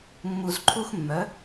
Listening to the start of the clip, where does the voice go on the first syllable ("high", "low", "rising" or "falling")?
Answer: low